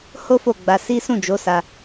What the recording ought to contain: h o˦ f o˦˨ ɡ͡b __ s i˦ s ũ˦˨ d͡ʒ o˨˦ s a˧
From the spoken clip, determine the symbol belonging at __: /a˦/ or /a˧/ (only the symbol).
a˧